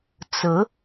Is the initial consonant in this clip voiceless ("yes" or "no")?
yes